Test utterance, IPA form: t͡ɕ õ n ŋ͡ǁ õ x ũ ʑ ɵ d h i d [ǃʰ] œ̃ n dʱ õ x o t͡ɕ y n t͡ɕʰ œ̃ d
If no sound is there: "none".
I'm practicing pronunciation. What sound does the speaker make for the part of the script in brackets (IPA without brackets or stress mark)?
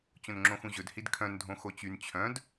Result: kʰ